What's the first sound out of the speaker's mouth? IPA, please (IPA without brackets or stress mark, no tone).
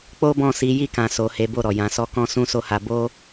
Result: k͡p